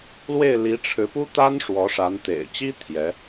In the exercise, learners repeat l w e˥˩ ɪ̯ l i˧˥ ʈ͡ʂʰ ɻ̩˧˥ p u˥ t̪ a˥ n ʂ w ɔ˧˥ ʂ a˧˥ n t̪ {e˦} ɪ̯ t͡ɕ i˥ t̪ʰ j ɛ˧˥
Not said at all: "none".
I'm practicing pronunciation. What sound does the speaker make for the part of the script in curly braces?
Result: ḛ˨˩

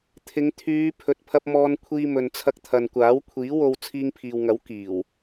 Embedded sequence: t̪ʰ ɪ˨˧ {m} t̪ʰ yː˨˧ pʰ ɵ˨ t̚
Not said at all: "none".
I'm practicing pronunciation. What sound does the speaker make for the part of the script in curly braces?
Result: ŋ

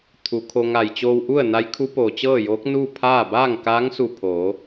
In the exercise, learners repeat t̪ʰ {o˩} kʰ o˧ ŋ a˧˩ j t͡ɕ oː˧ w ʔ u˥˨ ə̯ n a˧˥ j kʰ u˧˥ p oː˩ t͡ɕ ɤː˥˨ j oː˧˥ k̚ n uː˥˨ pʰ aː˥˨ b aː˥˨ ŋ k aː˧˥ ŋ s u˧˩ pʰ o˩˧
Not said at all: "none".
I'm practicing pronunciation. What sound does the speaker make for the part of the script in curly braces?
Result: u˩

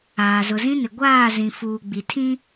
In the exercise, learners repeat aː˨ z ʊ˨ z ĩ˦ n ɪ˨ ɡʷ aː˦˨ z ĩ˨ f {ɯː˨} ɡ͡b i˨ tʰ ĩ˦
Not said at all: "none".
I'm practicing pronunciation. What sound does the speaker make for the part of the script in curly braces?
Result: uː˨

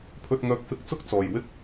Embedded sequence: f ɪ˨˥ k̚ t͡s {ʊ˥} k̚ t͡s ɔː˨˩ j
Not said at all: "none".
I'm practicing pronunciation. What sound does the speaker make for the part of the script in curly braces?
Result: ʊ˥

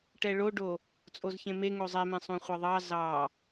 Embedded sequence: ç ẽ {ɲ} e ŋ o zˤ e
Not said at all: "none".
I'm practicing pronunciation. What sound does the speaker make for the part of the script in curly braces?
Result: m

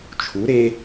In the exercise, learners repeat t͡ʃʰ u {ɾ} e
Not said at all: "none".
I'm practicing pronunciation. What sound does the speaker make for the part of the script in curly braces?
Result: ɾ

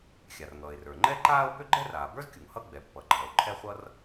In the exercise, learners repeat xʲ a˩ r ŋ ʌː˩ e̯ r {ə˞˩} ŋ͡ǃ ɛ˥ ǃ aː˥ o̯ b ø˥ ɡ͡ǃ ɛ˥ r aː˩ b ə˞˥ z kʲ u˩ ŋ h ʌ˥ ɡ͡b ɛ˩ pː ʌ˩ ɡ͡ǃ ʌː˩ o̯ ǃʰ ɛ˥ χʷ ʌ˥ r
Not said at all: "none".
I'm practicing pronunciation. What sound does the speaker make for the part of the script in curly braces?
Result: ə˞˩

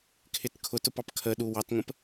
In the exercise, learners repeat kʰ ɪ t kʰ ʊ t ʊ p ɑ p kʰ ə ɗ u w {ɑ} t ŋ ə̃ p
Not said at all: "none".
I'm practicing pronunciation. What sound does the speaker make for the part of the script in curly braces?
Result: ɑ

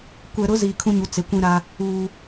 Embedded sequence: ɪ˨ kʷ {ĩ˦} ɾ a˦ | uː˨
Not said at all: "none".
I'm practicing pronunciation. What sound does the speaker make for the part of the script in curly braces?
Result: ĩ˦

